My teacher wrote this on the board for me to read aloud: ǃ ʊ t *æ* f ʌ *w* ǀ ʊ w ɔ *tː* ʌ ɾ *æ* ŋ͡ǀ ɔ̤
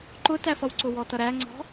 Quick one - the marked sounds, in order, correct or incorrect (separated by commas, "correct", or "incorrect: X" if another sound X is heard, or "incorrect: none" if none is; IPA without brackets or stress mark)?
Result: correct, correct, incorrect: t, correct